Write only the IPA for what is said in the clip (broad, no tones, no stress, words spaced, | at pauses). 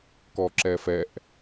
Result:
kɔǁɛfɛʔ